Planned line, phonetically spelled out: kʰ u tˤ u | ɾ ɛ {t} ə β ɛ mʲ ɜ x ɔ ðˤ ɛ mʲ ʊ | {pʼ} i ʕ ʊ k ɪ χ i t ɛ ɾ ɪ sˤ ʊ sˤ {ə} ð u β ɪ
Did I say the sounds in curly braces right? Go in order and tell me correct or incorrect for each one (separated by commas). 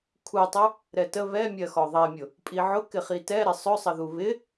correct, correct, correct